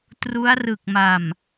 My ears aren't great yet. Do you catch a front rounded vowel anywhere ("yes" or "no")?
no